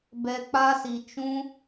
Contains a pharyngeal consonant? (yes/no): no